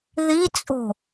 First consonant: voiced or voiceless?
voiced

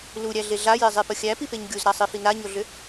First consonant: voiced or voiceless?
voiced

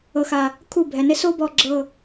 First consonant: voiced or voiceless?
voiceless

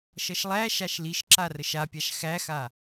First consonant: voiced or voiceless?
voiceless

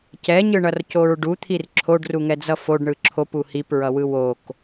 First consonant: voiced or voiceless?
voiceless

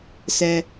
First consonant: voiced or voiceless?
voiceless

